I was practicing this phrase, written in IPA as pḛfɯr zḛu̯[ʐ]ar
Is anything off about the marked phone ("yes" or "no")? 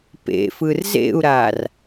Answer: yes